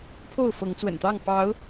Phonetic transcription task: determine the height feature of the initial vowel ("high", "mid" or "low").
mid